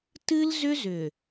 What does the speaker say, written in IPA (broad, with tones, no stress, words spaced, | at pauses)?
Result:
tɨ˦lzʏ˦zʏ˨